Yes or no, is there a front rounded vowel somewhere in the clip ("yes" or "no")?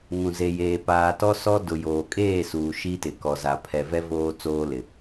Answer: no